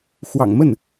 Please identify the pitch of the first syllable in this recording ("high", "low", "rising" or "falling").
low